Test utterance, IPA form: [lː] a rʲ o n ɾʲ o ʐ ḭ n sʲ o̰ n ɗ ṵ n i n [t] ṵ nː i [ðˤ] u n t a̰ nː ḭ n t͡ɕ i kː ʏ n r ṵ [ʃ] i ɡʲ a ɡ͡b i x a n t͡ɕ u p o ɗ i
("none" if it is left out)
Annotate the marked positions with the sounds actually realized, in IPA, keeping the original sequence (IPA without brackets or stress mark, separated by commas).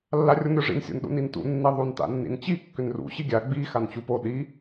lː, t, ðˤ, ɕ